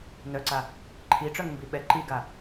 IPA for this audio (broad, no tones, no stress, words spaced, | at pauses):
nœǀa | ǃʰiʈ͡ʂœŋmbi ɓɛ ǃiɡa